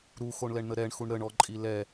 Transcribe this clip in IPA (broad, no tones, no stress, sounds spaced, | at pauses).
ɾ u x o ɳ l ɛ ɳ n̪ ə ɾ ɛ ɳ x u ɳ ɾ ə ɳ ɔ ǃʼ i l ɛ